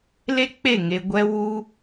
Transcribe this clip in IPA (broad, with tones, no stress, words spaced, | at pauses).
le˦k͡pe˦˨ŋe˧ ɡʷɛ˦ wu˦